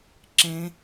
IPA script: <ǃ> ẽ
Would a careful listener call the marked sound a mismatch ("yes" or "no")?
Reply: yes